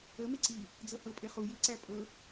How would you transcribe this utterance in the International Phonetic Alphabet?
ə m e ǀ i | d͡z ɤ h ɤ pʼ e χ u j i ǀ æ pʼ ɤ

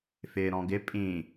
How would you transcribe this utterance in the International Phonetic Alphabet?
f ɪː ɾ ɔ̃ ɡ ɪ pʼ ĩ

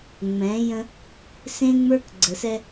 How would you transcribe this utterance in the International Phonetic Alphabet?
ŋ͡m ɛ̃˨˦ j ə̃˦ | s ẽ˦ ŋ͡m ə˞˦ k ɡ͡ǀ ə˨ s ɛ˦

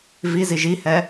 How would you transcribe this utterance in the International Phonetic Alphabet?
v i z i ʒ i h ɛ

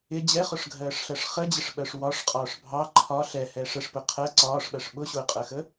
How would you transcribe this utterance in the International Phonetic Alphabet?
ɪ d͡ʑ ɛ χ ʊ ʂ ɡʱ ɜː ʂ ɬ ɜ ʂ χ ə d͡ʑ ɪ ʂ ɓ ɜ ʂ w ɒ ʂ qʼ ɒː ʂ bʱ ɑ ǃʰ ɒ ɬ ɛ h ɛ ʂ ə ʂ p ʊ qʰ ɜ ǀ ɒː ʂ ɓ ɜ ʂ ɓ ʊ ɕ ʊː qʼ ɜ x ə

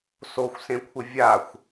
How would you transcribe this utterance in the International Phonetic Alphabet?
s o xʷ s ẽ kʷʰ ɪ vʲ a xʷ

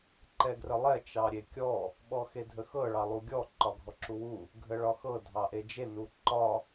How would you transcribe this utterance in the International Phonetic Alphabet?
ǃ ɛ ɡ r ə lˠ ɛ t͡ʃ ɑ ɾʲ e kʲ ɔ | ɓ ɔ x e dʱ ə x ɤ ɭ ɑ lˠ u ɡʲ ɔ ǃ ɒ ɡʱ ɔ ǁ u w u | ɡʱ ə ɭ ɒ x ɤ dʱ ɑ ʔ e d͡ʒ e n u ǃ ɒ

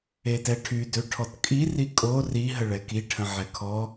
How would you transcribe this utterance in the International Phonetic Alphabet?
e t ɛ ʈʰ y d ø ʈʰ ɔ t kʼ i r i kʼ o r i ɦ ə ɭ ɛ k i ʈʰ ə̃ ʕ ɛ kʰ ɔ

